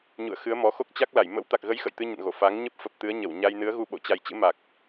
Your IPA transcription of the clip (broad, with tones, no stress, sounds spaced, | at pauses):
ɲ ṵ˧˨ ə̯ x ɨ˨˦ ə̯ m ɔ˨˦ x o˦˥ k̚ t͡ɕ a˦˥ k̚ l a˧˩ j m ə̰˧˥ w t̪ a˨˩ k̚ ɣ ə˨˦ j x ə̰˧˨ j t̪ ɨ˧ ɲ ə̰˧˨ n ɣ o˧˩ f a˨˦ ŋ ɲ ə˦˥ p̚ f ə˨˩ p̚ t̪ ɨ˨˦ ə̯ ɲ ə˧˩ w ɲ a˧ j n ɨ˨˦ ə̯ ɣ u˧ ɓ o̰˧˨ t͡ɕ a˨˩ j t͡ɕ ɨ̰˧˥ m a˨˩ k̚